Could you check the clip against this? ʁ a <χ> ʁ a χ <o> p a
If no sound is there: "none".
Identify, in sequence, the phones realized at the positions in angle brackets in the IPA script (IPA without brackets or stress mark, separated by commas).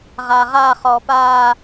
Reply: none, ɔ